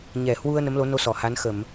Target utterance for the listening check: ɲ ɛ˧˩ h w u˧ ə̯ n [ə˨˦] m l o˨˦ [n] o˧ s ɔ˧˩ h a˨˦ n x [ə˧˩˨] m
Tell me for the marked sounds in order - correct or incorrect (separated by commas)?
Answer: correct, correct, correct